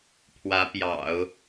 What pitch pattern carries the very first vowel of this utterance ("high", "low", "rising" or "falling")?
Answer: rising